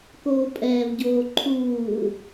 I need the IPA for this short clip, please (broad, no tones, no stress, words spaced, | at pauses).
koːpʼɛːvɟoː ǃʰuː